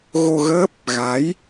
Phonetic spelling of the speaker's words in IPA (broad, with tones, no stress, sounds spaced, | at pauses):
ɣ o˧ ɣ əː˦˥ p̚ | ɣ a˨˦ j